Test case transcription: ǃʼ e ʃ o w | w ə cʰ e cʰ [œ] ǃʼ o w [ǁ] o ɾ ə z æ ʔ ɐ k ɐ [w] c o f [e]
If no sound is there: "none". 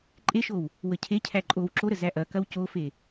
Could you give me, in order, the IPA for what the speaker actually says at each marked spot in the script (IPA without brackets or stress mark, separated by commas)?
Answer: æ, ǁ, w, e